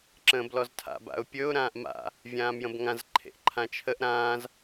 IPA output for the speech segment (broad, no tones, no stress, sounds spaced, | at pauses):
ǁ ə̃ː b l ɔ z tʰ a̰ b a̰ ʊ̯ pʲ ɵ ʊ̯ ɾ ãː ʔ m a̰ | vʲ ãː m j ə̃ b ŋ ã z ǃʰ ḛ ʔ ǃʰ ã t͡ʃʰ ə ʔ ɾ ãː z